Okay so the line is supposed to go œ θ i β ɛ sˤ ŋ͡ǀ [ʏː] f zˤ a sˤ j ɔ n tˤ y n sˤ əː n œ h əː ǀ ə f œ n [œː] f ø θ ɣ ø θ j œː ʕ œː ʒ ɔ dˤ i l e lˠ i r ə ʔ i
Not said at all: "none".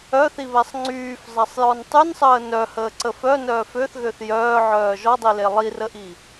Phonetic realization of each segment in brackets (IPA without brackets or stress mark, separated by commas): yː, œː